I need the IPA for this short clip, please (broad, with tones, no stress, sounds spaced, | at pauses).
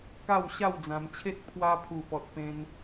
k a˥˧ w ɕ a˥˧ w d͡z ã˧ m t͡ɕʰ e˦ t̚ pʰ w a˧ pʰ u˨˩ p ɔ˨ t̚ p ẽ˧ n